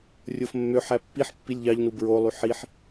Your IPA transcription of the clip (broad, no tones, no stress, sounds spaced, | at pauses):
rʲ o f mː ø ħ æ pː i ħ pː i lʲ ʎ ɑ ʎ n u b ɹ o lˠ y ħ i ħ